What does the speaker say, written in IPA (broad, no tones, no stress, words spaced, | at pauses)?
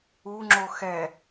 uŋ͡ǁo xɛ